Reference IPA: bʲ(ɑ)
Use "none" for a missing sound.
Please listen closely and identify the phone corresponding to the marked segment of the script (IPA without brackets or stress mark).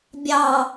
ɑ